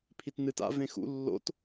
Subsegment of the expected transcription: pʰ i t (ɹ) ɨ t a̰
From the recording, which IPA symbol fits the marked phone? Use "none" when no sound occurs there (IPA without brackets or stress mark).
n